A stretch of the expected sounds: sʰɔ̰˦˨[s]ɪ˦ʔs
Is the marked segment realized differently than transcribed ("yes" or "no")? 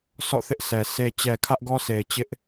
yes